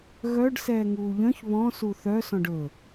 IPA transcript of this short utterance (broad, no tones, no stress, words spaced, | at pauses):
ɣœɖ sɛːŋuːʎœ̃ç βɔ̃ suθœ sɔ̃ɖɵ